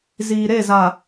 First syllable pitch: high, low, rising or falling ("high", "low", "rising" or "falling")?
low